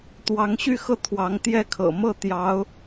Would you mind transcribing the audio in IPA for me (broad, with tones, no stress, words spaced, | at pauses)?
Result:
t̪wɑ˧˥ŋɕy˥˧xɤ˥˩ t̪ʰwɑ˧˥ŋt̪jɛ˥˩kʰɤ̰˨˩ mɤ˥˩t̪jɑ˧˥ʊ̯